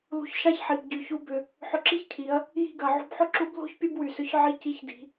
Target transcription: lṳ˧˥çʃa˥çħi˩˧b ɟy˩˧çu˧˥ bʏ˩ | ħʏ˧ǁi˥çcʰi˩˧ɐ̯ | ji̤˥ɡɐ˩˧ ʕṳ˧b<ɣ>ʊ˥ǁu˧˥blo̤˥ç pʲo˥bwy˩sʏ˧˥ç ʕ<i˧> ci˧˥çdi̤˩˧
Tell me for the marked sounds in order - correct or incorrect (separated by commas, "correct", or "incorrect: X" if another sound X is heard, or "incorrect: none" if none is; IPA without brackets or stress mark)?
incorrect: ħ, correct